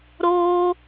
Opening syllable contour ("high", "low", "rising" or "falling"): high